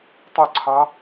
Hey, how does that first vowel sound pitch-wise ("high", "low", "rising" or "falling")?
falling